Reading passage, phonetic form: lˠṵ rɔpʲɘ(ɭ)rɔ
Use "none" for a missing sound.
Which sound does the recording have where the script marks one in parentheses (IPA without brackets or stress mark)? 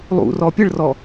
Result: ɭ